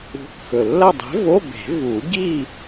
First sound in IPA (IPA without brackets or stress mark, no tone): ṳ